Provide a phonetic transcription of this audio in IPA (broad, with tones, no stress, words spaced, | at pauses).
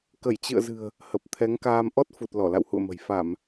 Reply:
kə˧˩jt͡ɕɨ̰˧˨ə̯zɨ̤˨˩ə̯ | hə˨˩p̚t̪ʰɛ˨˦ŋkaː˧m ʔɔ˦˥t̚fu˨˩t̚ lɔ˧˩la̰˧˨whṵ˧˨ə̯mə̤˨˩j fa˧˩˨m